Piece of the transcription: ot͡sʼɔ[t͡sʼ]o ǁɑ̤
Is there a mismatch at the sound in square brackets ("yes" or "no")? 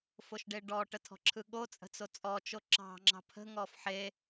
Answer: yes